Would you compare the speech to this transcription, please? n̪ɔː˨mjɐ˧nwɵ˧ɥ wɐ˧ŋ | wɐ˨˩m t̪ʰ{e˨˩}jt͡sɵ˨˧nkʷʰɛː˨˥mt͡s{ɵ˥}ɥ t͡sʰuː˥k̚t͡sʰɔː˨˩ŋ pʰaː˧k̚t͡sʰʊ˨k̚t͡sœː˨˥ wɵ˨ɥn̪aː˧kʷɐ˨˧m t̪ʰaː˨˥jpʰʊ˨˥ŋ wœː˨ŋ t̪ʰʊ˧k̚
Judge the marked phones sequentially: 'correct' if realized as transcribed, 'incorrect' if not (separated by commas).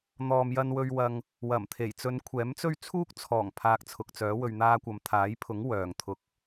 correct, correct